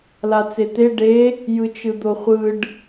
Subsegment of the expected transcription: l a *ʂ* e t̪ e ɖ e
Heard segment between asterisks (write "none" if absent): t͡s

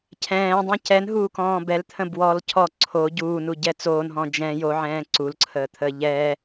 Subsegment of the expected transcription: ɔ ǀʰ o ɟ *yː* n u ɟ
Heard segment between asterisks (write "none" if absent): uː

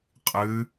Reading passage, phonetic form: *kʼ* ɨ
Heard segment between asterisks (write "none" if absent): qʼ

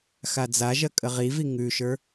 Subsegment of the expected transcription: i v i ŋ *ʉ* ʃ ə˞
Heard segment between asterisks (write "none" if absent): ʉ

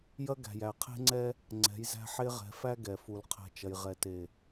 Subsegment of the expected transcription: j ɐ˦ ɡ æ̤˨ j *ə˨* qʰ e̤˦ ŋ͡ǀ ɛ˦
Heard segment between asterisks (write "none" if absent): æ˨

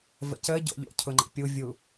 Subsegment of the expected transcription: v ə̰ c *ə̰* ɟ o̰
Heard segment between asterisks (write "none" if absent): ə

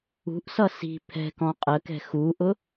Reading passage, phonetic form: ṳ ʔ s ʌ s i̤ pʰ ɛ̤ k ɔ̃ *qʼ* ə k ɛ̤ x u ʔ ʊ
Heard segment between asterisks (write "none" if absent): qʼ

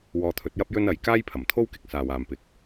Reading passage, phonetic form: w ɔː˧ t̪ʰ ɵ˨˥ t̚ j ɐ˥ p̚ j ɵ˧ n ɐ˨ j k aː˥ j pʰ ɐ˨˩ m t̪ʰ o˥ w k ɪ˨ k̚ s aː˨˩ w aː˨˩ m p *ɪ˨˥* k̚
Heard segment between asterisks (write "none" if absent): ɪ˨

